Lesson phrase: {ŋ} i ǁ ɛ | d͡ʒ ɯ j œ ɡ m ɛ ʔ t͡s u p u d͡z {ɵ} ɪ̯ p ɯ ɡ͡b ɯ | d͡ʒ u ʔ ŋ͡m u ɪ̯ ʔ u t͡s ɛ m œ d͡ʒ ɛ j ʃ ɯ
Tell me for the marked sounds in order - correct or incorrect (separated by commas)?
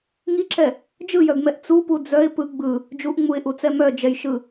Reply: correct, incorrect